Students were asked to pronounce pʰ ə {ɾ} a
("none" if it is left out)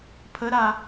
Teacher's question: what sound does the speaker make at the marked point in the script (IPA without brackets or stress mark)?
ɾ